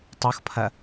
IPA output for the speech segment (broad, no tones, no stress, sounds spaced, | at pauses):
tˤ o x pʰ ɐ